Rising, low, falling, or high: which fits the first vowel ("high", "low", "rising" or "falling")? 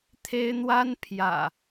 high